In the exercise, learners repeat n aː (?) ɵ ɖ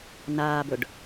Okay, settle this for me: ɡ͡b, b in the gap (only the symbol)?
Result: b